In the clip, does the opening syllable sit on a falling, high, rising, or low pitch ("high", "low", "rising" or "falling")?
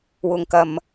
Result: low